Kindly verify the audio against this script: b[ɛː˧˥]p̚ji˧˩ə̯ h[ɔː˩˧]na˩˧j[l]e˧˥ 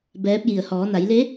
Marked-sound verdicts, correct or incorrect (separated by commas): correct, correct, correct